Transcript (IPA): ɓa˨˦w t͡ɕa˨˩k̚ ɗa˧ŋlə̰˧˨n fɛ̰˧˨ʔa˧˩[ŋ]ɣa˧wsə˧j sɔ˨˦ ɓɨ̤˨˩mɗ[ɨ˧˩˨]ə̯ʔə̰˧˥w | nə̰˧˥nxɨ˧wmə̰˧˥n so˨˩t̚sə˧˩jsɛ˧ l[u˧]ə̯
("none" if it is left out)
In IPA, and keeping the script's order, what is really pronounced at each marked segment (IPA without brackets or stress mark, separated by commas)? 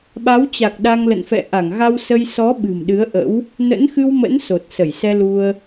ŋ, ɨ˨˦, u˧